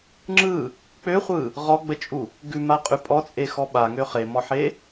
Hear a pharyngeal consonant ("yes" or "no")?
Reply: yes